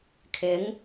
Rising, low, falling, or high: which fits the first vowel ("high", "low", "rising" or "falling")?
rising